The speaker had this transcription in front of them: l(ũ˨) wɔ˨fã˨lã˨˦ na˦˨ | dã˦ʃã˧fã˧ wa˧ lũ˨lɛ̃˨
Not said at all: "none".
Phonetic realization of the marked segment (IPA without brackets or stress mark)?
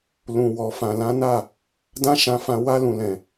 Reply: ũ˨